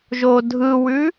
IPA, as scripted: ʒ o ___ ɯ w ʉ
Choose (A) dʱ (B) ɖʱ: A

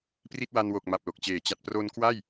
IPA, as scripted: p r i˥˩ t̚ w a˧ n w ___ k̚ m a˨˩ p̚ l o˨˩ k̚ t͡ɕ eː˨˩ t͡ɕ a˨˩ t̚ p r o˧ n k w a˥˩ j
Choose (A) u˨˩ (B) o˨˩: B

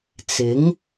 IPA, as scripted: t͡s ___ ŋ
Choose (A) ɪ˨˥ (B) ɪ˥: A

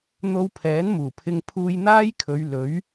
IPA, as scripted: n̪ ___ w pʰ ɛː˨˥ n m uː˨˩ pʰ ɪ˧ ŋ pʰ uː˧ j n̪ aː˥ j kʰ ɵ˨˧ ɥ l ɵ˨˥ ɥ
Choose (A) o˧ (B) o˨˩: A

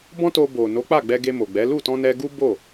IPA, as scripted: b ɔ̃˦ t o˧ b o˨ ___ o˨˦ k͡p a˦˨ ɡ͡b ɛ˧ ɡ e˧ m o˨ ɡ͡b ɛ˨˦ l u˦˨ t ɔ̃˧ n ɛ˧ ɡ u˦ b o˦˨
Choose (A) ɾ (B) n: B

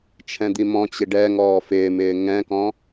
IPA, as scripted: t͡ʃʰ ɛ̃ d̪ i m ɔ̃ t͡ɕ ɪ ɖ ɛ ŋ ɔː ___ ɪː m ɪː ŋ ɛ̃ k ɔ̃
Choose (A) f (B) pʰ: A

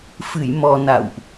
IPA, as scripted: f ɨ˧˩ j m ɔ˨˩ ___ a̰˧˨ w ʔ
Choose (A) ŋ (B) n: B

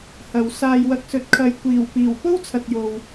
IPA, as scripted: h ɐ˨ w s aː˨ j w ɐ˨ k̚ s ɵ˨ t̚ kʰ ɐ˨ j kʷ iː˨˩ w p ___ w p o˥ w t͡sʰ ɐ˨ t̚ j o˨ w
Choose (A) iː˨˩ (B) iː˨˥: A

